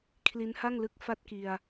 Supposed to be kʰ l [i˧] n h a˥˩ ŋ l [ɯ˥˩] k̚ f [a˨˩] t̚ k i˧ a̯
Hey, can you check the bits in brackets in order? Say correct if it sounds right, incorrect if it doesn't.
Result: incorrect: i˦˥, incorrect: ɯ˦˥, incorrect: a˥˩

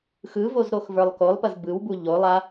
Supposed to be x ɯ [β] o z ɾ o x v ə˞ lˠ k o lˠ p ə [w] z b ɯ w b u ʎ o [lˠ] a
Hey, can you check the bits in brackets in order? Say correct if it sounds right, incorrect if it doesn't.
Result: incorrect: v, incorrect: none, correct

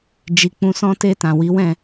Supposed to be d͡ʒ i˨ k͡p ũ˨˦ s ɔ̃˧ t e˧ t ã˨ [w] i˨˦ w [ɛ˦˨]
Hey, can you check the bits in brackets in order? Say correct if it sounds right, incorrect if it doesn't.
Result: correct, incorrect: ɛ̃˦˨

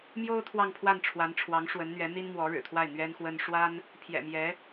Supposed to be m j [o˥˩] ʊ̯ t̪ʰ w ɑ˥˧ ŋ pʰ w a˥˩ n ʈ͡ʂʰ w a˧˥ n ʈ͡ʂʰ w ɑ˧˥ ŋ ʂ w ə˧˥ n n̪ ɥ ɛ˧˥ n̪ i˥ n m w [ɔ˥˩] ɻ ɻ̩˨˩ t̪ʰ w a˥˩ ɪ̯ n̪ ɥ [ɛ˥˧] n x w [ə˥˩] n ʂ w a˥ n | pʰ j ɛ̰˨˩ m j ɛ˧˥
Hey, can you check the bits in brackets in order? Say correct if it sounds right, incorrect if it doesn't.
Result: incorrect: o˥, incorrect: ɔ˧˥, incorrect: ɛ˥, incorrect: ə˥

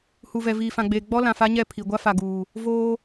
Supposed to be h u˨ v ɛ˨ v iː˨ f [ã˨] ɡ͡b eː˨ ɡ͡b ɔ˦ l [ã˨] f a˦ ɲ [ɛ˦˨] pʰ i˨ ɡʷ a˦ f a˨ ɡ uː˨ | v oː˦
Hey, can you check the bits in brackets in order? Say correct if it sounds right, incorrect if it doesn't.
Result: correct, correct, correct

